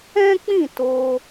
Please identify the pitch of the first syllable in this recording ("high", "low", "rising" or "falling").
high